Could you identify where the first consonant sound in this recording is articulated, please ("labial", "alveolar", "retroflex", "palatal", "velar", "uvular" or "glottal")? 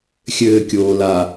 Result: velar